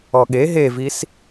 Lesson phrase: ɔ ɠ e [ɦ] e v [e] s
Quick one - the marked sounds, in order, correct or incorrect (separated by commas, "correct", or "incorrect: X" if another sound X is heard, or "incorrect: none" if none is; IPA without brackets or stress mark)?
correct, incorrect: i